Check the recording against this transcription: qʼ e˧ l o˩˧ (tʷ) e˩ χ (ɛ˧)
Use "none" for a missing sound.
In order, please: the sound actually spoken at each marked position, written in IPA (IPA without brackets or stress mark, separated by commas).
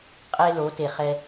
t, ɛ˧